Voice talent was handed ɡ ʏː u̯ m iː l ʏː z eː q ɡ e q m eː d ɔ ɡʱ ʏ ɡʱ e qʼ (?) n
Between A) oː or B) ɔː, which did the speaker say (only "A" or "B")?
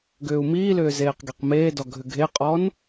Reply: B